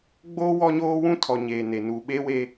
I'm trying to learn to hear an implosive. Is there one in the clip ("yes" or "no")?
yes